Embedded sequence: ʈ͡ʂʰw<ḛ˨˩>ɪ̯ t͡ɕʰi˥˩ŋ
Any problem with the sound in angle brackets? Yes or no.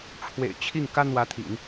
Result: no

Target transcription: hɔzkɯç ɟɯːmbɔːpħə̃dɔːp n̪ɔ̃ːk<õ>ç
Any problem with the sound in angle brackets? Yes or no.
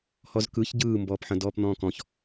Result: yes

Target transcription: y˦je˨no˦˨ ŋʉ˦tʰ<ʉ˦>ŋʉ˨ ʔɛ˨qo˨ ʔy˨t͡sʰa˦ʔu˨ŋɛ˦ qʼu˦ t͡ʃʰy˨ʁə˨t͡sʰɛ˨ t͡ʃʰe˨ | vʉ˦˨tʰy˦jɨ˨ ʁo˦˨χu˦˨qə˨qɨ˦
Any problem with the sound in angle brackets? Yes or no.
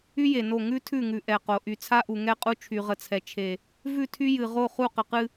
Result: yes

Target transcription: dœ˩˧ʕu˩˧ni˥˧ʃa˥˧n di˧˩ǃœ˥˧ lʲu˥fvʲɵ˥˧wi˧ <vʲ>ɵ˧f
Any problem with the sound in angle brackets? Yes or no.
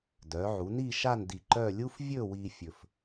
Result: yes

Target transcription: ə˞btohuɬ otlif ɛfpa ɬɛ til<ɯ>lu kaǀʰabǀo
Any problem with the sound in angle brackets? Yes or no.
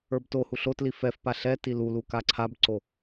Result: yes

